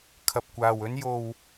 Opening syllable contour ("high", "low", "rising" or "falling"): low